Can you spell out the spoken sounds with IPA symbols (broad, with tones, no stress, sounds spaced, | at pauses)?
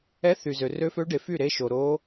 ɛ˧˥ θ y˨ z ø˨ r ø˧˥ f ø˧˥ ɖ e˨ f y˥˨ ɾ e˧˥ ʃ o˨ ɾ o˧˥